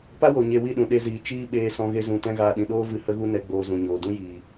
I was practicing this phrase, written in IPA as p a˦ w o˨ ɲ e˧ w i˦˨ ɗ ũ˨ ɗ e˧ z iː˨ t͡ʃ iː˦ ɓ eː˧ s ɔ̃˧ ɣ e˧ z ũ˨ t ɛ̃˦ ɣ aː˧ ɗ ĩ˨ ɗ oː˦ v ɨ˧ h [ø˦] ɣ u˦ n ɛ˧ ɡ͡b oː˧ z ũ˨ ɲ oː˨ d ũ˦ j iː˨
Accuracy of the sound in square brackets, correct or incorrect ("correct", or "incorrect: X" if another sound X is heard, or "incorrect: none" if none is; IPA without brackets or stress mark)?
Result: incorrect: ə˦